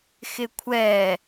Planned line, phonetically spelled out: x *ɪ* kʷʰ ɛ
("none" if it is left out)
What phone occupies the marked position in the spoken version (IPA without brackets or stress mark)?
ɪ